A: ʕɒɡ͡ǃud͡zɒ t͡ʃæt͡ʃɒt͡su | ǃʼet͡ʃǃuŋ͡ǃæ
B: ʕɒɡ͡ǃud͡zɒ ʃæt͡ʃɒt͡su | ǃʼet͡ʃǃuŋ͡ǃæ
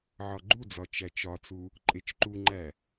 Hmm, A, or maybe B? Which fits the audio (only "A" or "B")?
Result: A